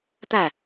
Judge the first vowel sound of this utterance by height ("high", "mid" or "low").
low